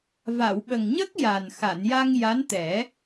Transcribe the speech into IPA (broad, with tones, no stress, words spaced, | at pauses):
va˨˩˨wɓə˨˩ŋɲə˦˥k̚ ja˨˩n xa˨˩˨nja˧ŋ ja˧˥nt̪ɛ˨˩˦